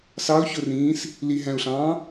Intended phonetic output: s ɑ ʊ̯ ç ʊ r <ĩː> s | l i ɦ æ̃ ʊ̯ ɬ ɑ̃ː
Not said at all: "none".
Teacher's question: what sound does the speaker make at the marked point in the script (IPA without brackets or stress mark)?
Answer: ĩː